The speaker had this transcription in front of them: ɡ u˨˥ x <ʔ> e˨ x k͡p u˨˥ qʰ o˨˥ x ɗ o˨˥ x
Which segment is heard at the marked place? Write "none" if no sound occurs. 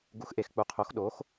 ʔ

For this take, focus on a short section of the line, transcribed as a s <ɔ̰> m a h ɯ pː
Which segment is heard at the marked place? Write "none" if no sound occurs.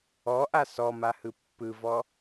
ɔ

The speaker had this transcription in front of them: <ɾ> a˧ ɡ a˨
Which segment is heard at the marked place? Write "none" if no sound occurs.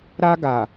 ɾ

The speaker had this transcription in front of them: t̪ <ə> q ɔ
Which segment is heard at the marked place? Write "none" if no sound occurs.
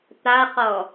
a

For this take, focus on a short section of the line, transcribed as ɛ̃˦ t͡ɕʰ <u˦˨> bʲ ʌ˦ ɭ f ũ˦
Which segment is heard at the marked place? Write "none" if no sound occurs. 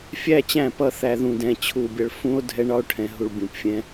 u˦˨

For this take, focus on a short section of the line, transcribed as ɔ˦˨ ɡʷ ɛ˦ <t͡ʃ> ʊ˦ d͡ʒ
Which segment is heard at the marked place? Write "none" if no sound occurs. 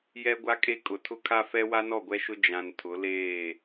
ʃ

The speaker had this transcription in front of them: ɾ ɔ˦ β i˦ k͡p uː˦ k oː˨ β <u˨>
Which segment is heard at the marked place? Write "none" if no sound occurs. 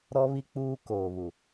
u˨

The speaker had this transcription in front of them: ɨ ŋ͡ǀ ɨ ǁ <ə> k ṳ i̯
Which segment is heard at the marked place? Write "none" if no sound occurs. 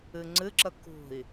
ə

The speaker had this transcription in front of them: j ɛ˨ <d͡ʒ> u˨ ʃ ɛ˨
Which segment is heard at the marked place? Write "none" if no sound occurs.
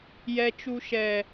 t͡ʃ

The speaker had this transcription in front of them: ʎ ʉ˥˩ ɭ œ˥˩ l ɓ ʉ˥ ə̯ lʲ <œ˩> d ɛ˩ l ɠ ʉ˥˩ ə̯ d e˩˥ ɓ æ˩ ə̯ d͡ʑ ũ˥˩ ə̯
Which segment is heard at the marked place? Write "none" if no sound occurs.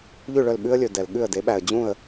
ɵ˩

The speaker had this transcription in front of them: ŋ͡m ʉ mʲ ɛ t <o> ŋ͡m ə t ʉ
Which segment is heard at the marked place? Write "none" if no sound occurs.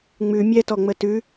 ɔ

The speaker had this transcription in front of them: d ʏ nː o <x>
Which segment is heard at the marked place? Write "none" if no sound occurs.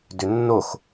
x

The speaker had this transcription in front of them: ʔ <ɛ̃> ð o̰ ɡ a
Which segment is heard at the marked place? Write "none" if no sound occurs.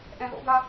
ɛ̃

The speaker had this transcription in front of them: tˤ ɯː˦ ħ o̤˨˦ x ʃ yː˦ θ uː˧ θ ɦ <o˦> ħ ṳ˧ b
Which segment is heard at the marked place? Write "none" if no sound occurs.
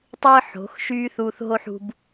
o˦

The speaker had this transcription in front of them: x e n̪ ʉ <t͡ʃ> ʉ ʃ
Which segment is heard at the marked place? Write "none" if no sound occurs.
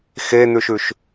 ʃ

